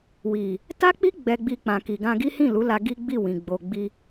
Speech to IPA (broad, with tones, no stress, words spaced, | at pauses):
wi˨ | ta˦k͡pi˦ ɡ͡bɛ˧ɡ͡bi˧ k͡pã˨ki˨ ɡã˧ɡi˦hĩ˦˨ lu˨˦la˧ ɡi˦ɡ͡bi˦˨wĩ˨ ɡ͡bo˨ɡ͡bi˧